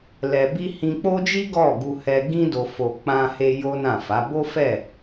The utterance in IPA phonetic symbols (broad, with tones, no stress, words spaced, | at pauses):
lɛ˧bi˦ hĩ˧k͡po˦d͡ʒi˦ ɡɔ˦˨ ɡu˧hɛ˧ɡĩ˦do˧ fo˧ k͡pã˧he˧ jo˦nã˦˨fa˨˦ bo˦fɛ˦˨